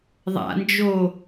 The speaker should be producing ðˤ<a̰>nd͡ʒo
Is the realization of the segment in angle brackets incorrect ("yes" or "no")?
no